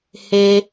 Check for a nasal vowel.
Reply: absent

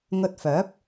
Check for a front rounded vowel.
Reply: present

